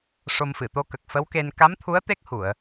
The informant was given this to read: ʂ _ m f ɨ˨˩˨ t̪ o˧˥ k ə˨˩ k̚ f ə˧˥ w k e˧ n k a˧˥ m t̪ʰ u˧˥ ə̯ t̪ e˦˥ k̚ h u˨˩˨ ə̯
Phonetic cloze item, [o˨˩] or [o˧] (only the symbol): o˧